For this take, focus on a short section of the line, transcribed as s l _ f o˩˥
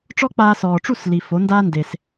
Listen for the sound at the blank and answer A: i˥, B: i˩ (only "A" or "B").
B